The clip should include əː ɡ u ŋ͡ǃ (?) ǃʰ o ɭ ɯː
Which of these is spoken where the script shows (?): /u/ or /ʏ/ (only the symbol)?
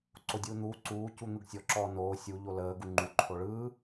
u